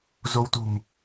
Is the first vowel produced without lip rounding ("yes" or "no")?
no